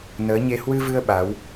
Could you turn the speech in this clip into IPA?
n əː˨˦ ɲ e˧ h w ɨ˧ v ɨ˧ ə̯ ɓ a˨˦ w

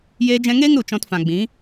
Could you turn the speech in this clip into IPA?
j eː˧ d͡ʒ ɛ̃˧ ŋ eː˦ ŋ ɾ u˨ t͡ʃ ɔ̃˧ t f ã˨ ɡ͡b ĩ˨˦

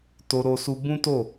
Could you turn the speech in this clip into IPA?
t o˧ ɾ o˧ s u˧ b ũ˦ t o˦˨

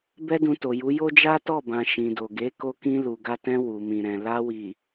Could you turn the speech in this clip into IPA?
b ɛ˦ d ũ˧ t o˨ j u˨˦ j o˦ d͡ʒ a˦ t ɔ˦˨ b ã˨ ʃ ĩ˨ d o˨ ɡ e˨˦ k o˧ k ĩ˧ l u˨ ɡ a˧ t ɛ̃˧ w u˨ m ĩ˨ ɾ ɛ̃˨ l a˧ w i˨

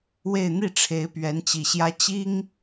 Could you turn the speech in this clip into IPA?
w e˥˧ ɪ̯ n̪ i˥˩ ʈ͡ʂʰ e˧˥ ɪ̯ p ɥ ɛ˧˥ n t͡ɕ i˨˩ ɕ j ä˥ t͡ɕ i˥ ŋ

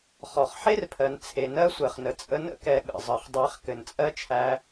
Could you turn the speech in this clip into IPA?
χ ɔ˨ χ ħ e˦ r pʰ ɜ˨ n t͡sʰ e˨ n ɜ˦ sʷ ɜ˨ χ n ə˨ t͡sʼ ə˧ n ə̰˦ k ɛ˨ ɠ ə̰˨ zˤ ə˨ χ dˤ æ˧ χ k ɘ˨ n t͡sʼ ɜ˦ t͡ʃʰ æ˧

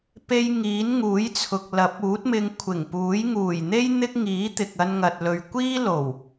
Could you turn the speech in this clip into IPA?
p e˧ j ŋ iː˨˥ n ŋ uː˨˥ j t͡sʰ ʊ˨ k̚ l ɐ˨˥ p̚ uː˨˥ t̚ m ɪ˧ ŋ kʷʰ ɪ˨˩ ŋ p uː˨˥ j ŋ uː˨˩ j n̪ e˥ j n̪ ɪ˥ k̚ ŋ iː˨˥ t̪ ɪ˨ k̚ ɐ˧ n ŋ ɐ˨ t̚ l ɵ˨ ɥ kʷ iː˥ l o˨˩ w

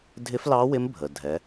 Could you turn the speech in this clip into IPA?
dʱ ɪ˧˥ f l ɑ˧˥ w ɪ˧˥ m bʱ ə˩ dʱ ɛ˩˧

